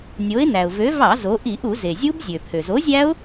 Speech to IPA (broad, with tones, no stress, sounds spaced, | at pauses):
nʲ o˨˥ ɪ̯ n æ˩ ʊ̯ v ø˨˥ v ɑ˧˩˧ z o˩˧ ʔ i˧˩˧ ʔ u˧˩˧ z e˩ zʲ u˦˥ b zʲ ø˩ pʰ ø˩ z o˨˥ zʲ æ˦˥ ʊ̯